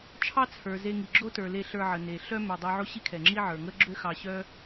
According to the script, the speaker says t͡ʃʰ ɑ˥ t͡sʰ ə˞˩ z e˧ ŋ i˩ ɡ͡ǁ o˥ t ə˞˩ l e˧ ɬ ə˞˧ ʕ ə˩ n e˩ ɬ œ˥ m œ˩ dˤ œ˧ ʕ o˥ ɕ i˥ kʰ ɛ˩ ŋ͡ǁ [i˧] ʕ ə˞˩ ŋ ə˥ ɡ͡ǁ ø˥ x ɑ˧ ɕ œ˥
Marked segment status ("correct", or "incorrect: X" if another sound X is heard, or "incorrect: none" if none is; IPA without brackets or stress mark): incorrect: i˥